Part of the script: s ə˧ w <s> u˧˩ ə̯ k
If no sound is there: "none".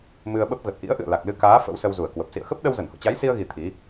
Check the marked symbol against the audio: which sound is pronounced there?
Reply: z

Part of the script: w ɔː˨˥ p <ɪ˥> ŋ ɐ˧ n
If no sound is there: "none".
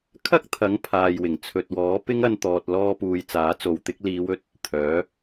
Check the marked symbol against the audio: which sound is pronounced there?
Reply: ɪ˥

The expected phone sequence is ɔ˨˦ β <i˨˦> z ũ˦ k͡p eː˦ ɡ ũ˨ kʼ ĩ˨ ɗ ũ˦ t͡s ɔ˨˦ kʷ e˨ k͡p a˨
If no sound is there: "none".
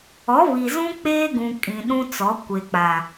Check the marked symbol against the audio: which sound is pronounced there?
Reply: i˨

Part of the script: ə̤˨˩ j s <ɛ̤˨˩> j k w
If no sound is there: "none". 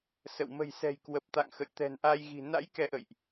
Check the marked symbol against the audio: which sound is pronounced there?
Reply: ɛ̤˨˩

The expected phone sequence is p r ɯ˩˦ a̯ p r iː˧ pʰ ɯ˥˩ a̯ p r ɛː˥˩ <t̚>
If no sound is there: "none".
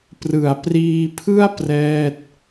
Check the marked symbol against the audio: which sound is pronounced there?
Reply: t̚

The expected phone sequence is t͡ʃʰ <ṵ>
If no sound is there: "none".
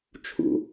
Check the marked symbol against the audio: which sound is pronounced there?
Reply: ṵ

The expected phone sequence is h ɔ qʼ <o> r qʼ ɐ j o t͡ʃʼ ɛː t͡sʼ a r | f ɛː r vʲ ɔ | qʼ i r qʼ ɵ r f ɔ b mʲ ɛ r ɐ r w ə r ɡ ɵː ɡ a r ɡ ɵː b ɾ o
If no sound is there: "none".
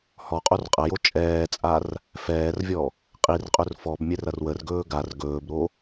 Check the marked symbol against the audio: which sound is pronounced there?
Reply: o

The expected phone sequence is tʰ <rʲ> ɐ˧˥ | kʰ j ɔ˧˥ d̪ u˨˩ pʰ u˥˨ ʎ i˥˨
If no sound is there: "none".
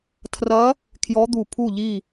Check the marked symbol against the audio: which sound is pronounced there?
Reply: r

